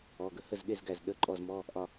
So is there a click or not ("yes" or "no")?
yes